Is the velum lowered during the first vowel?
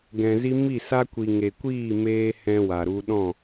yes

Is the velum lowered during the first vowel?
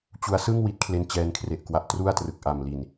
no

